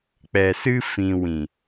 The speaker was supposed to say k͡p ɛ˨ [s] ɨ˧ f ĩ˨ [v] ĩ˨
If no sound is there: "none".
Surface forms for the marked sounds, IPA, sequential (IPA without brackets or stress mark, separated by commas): s, w